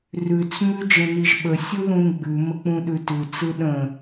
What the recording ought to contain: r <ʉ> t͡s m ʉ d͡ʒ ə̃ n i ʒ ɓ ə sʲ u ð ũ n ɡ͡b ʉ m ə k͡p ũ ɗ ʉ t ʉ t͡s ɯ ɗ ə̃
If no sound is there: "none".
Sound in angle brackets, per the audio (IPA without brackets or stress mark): ʉ